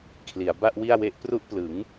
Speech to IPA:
kʰ l i˩˦ a̯ b a˥˩ ʔ w i˥˩ a̯ w e˥˩ ʔ p r u˦˥ ʔ p l ɯ˩˦ ŋ

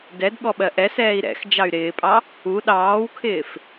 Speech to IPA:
d ɛ d ɠ ɔ ɓ ɜ ʔ ɛ s ɛː i̯ ɾ ɛ̰ x d͡ʒ ɑ y̯ ɾ ɪː pʼ ɑ | u ɗ ɑː w kʰ ɪː f

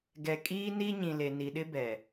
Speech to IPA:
ɡ ɛ˨ kʼ iː˦ n i˦ ɲ ĩ˨ l e˨ n i˨ ɗ ɪ˦ b ɛ˨

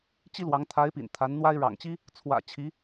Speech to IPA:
t͡ɕ i˥ l w ɑ˧˥ ŋ t̪ʰ a˧˥ ɪ̯ p ḭ˨˩ n t̪ʰ a˧˥ n n̪ w a˥ ɪ̯ ɻ ɑ̰˨˩ ŋ t͡ɕ i˥ | t͡sʰ w ä̰˨˩ t͡ɕʰ i˧˥

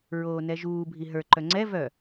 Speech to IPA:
ɹ oː n ɛ ʒ uː bʱ i ɦ ə˞ ǃ œ ŋ͡ǀ ɛ v œ

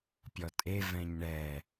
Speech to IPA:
pʲ ɔ tʼ e v ɛ̃ ɲ ɳ ɛ

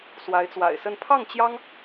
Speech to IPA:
s w a˧˥ ɪ̯ t͡s w a̰˨˩ ɪ̯ s ə˥˧ n pʰ ɑ˥˩ ŋ t͡ɕ j ɑ˥ ŋ

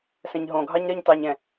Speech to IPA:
s ɛ̃ ɲ ɦ õ ɡʱ ɑ ɲ ɾ ɜ ɲ t ɑ ɲ ɛ̃

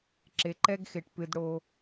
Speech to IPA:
ǁ e˨ ǃ ɛ˦ ɡ x e˨ ʈ p ɨ˨ d ɽ o˦

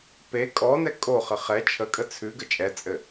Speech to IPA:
p e kʼ ɔ n ɛ kʼ o χ ə χ ɛ t͡ʃʰ ə kʼ ə t͡sʰ ʉ ɡ ə t͡ʃʼ ɛ t͡sʼ ɘ

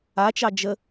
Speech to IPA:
a t͡ʃ ɑ d͡ʒ ə

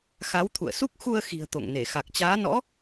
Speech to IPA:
x a˨˦ w t̪ʰ ṵ˧˨ ə̯ s u˦˥ k̚ x u˧ ə̯ x i̤˨˩ ə̯ t̪ o̰˧˨ ŋ n e˧˩ x a˨˩ k̚ t͡ɕ aː˨˦ n ɔ̰˧˥

